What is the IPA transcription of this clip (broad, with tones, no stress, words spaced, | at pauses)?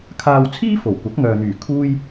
kʰaː˧wt͡sʰiː˥fo˨˩wkʷɐ˨˥k̚ ŋœː˨n̪yː˨˩ kʰuː˥j